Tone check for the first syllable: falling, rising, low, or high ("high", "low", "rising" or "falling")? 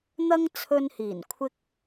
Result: high